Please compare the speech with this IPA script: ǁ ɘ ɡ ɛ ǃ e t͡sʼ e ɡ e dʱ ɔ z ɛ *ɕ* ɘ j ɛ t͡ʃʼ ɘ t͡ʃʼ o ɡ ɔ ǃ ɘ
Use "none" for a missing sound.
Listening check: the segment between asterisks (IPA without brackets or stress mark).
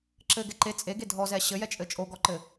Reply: ɕ